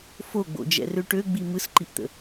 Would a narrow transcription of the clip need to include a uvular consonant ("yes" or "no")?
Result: no